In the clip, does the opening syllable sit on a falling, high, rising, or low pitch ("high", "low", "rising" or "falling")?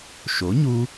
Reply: rising